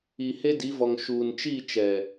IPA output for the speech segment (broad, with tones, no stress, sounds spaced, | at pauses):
i˨ h e˦ d i˨˦ v ɔ˨ ŋ ʃ uː˨ n t͡ʃ i˦˨ t͡ʃ ɛ˨